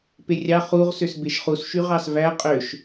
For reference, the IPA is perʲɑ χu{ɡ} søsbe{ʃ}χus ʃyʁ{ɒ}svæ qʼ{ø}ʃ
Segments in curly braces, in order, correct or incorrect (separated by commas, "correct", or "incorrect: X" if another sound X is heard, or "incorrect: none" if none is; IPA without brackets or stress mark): incorrect: ʁ, correct, incorrect: ɑ, correct